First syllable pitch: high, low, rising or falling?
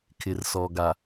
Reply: low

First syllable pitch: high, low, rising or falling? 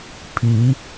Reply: rising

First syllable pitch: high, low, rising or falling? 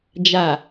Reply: low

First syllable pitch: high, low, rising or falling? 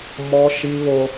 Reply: high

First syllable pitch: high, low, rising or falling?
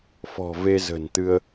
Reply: low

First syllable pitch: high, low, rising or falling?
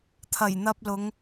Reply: low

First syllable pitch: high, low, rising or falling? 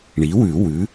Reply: rising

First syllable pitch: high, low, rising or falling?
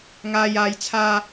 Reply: low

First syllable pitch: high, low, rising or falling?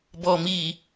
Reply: low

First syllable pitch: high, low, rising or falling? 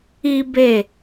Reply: high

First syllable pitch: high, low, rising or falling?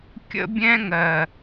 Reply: high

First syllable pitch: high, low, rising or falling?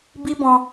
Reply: high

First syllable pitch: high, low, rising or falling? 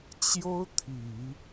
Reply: high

